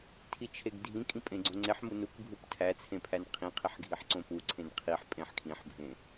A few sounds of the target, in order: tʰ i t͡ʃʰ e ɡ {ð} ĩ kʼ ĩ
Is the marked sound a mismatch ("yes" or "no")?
yes